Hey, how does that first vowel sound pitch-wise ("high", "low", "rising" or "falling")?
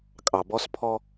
low